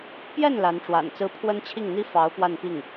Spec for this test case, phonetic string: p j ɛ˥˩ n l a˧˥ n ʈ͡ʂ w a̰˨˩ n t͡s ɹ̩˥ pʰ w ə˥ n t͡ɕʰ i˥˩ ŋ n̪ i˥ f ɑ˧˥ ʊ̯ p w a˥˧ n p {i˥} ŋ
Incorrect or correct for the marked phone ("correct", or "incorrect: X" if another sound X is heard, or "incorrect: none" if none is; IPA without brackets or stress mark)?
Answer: incorrect: i˥˩